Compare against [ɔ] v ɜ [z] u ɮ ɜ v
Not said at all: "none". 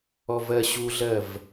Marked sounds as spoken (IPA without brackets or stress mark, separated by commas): ɔ, ɕ